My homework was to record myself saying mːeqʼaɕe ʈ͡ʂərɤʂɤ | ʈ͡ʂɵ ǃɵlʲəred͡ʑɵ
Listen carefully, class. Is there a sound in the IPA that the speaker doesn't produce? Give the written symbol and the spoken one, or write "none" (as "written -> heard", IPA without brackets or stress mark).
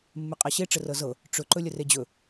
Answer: ʂ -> z